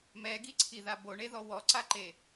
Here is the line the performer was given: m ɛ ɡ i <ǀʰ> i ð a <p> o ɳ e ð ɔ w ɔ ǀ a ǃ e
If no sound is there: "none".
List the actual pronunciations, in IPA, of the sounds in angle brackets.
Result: ǀʰ, b

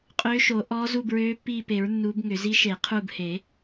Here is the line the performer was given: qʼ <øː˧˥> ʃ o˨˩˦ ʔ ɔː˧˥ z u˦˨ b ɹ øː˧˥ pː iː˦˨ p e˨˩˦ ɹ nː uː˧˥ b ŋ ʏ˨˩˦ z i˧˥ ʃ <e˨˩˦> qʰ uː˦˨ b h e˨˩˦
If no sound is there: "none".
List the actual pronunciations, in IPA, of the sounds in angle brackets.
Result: øː˧˥, e˨˩˦

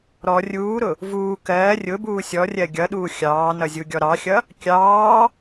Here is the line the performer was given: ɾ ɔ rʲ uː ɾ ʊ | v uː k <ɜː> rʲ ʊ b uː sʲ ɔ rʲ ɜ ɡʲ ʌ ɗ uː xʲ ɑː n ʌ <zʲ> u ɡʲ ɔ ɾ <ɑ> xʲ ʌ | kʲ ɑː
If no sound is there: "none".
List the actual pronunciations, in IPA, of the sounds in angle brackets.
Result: ɜː, zʲ, ɑ

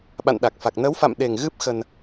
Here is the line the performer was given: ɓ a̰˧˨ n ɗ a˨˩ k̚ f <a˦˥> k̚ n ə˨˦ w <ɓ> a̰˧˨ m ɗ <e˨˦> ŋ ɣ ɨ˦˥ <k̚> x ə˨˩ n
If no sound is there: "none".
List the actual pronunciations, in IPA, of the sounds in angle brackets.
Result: a˨˩, f, e˨˩, p̚

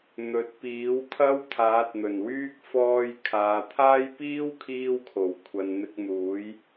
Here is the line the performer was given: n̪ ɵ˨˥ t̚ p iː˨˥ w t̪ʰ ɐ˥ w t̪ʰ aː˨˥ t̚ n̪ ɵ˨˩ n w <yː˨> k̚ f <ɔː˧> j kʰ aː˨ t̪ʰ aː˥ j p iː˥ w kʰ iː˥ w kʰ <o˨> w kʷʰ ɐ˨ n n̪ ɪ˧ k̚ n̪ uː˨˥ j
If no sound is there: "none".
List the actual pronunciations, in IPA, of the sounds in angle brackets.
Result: yː˥, ɔː˧, o˨˩

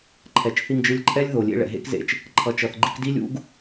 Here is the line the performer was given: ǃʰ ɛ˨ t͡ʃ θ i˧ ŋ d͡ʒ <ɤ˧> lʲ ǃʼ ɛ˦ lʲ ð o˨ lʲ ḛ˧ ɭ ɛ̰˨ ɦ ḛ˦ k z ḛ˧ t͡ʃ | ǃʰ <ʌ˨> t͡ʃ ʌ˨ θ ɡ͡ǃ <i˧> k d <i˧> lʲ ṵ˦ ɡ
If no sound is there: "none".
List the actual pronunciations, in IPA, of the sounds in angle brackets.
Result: ɯ˧, ʌ˨, i˧, i˦

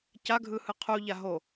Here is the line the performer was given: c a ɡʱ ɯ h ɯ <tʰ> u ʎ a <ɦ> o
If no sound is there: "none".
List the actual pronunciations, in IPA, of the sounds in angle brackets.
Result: qʰ, ɦ

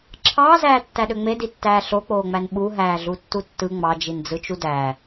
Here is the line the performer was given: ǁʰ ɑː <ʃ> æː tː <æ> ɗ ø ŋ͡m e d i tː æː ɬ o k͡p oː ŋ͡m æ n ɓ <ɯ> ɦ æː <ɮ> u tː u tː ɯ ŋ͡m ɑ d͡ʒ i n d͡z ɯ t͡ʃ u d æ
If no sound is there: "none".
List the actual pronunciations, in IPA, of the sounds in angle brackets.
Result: z, æ, u, ɮ

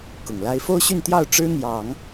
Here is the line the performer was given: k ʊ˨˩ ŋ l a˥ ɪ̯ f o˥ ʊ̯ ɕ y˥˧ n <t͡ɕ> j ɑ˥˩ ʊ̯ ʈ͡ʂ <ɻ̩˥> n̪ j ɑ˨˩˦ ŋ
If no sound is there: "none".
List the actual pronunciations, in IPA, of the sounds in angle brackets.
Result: t̪, ɻ̩˥

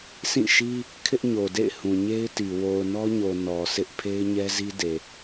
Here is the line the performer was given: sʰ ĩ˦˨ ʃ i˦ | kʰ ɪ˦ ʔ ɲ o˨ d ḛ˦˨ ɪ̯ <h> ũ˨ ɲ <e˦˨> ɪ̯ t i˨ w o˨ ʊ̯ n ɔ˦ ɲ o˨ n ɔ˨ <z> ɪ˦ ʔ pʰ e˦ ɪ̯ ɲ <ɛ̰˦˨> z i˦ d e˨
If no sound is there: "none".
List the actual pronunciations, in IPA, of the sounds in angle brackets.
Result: h, e˦, s, ɛ˦

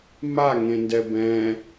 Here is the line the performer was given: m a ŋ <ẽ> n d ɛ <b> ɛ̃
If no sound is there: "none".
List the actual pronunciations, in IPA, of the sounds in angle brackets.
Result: ẽ, b

